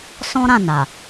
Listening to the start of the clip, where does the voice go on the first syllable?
high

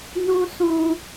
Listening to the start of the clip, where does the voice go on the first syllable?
high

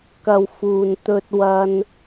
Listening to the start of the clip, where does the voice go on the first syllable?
low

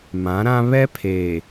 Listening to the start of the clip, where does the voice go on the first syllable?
rising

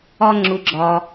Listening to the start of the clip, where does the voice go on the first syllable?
high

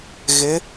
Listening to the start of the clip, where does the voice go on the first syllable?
rising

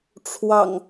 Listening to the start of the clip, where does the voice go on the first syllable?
low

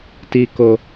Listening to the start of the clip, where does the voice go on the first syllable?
low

